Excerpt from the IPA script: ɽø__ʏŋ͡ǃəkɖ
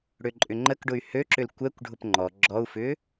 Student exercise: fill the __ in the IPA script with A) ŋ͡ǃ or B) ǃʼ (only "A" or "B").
B